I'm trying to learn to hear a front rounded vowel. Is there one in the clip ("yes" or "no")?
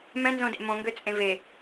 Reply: yes